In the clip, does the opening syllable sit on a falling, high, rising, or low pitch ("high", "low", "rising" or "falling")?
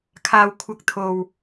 low